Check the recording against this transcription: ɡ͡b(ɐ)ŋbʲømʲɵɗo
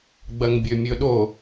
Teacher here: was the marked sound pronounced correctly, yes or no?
yes